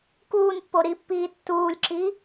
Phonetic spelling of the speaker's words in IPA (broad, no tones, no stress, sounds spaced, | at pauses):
k uː n pː o ɾ i pː iː tː uː lʲ ǁ i